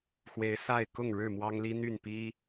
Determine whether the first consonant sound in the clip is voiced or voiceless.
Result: voiceless